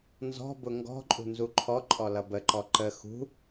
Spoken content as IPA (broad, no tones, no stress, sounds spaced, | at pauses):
n z ɔ̤ b ʊ ŋ ɡ ɔ̤ ǃʼ ṳ n z u ǃʰ ɔ ǃʼ ɔ l ʌ b ə ǃ ɔ ǃ ə x ṳ